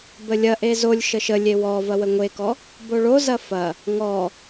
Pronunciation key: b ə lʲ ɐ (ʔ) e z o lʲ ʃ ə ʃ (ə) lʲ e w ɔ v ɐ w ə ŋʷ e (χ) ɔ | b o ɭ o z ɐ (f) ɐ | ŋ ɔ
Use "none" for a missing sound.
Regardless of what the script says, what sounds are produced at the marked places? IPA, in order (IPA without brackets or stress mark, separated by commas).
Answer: ʔ, ə, k, f